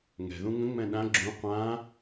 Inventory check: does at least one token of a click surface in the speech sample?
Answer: yes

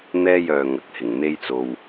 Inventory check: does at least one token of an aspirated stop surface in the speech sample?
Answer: no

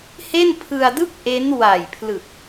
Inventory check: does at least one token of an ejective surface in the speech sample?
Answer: no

